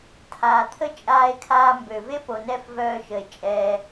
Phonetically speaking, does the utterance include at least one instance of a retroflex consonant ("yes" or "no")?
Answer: no